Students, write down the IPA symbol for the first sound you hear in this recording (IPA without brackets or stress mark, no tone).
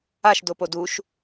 a